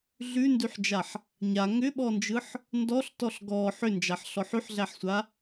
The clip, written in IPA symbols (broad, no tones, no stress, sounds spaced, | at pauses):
ɮ ʉ n d ʉ ħ d͡ʒ a ħ | ɲ a ŋ ʏ ɓ ɔ n d͡ʒ ɯ ħ | n d ɔ ɬ t ɔ ɬ ɡ ɔ ħ ʏ n d͡ʒ a ħ ɬ ɔ ħ ʉ ħ ɮ æ ħ sʷ a